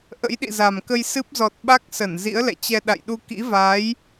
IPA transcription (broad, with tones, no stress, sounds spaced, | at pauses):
ʔ ə̰˧˥ j ɗ ḭ˧˨ z a˨˩ m k ə˧ j s ɨ˦˥ p̚ z ɔ˨˩ t̚ ɓ a˦˥ k̚ s ə˧˩ n z ḭ˧˥ ə̯ l ɛ̰˧˨ t͡ɕ ɛ˧ ɗ a̰˧˨ j ɗ u˧ k ḭ˧˥ v aː˨˦ j